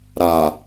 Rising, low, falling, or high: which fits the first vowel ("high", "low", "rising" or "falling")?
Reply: low